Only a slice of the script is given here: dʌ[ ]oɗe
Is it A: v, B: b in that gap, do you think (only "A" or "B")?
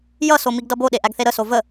B